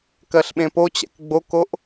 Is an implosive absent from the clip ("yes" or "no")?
no